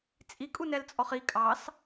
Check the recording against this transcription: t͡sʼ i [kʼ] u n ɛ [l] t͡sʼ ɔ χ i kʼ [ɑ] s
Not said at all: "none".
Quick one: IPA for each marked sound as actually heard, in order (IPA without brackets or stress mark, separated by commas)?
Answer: kʼ, l, ɑ